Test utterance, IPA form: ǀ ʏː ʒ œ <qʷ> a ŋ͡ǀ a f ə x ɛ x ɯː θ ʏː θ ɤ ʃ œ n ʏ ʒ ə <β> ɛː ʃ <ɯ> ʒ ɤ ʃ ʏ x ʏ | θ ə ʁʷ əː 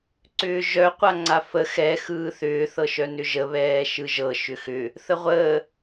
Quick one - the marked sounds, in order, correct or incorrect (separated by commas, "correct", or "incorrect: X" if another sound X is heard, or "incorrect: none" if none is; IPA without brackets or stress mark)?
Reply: correct, correct, correct